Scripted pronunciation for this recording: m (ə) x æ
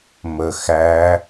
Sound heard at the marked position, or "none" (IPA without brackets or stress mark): ə